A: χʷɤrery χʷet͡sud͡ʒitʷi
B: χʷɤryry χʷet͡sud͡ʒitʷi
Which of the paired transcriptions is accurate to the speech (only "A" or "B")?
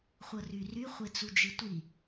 B